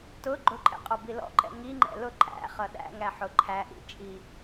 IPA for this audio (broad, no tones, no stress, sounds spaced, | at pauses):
t ʊ ɡ͡ǃ ʊ ǃʼ ɛ̰ qʼ ɔ b i l ɔ̰ ǃ ɛ̰ ŋ i ŋ͡ǃ ɛ̰ l ʊ ǃʼ æ̰ χ ʌ ɗ æ̰ ŋ æ ħ ʊ ǃʰ æ ʔ ḭ t͡ʃʼ i